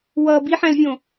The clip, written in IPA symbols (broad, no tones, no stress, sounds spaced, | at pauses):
w ʌ b i ħ æ̃ l vʲ õ